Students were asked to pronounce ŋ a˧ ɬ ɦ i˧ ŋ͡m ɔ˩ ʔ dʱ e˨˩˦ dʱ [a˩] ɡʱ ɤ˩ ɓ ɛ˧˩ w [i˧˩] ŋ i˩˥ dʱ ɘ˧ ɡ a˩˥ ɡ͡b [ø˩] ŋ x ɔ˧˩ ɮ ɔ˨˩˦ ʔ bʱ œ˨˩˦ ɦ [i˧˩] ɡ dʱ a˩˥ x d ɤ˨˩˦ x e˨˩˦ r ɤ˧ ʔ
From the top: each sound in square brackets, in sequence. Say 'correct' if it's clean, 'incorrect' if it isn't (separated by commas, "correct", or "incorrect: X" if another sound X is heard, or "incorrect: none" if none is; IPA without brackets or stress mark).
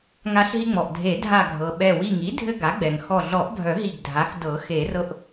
incorrect: a˧˩, correct, incorrect: ɛ˩, correct